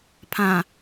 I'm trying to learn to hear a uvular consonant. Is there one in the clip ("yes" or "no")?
no